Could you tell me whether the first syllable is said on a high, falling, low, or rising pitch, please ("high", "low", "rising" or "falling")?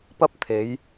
high